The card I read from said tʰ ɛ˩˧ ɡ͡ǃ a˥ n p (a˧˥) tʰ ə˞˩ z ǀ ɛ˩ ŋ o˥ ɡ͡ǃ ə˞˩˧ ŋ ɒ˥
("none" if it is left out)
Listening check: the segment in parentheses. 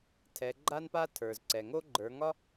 a˥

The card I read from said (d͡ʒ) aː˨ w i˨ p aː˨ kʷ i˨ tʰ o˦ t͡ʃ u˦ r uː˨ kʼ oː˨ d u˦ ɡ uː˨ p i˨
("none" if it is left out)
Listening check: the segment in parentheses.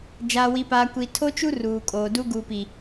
d͡ʒ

